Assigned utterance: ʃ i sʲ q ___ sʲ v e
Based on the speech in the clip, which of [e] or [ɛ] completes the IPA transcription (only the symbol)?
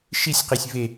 e